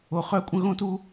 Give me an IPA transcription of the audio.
o˧˩ χ œ˥˧ kʷʼ ə̃˥ ɣ õ˥ t u˥

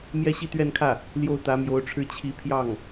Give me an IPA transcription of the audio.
m j ɛ˥˧ ɕ i˥˧ t̪ ɥ ɛ˥˧ n kʰ ä˥˩ | l j o˥˩ ʊ̯ t̪ ä˧˥ m j o˧˥ ʊ̯ ʈ͡ʂʰ ɻ̩˥˩ t͡ɕʰ i˧˥ pʰ j ɑ˥˩ ŋ

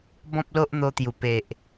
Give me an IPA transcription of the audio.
b ɔ̃˦ p̚ l o˦ ʔ n̪ o˧ t̪ j u˨˩ p e˨ ʔ

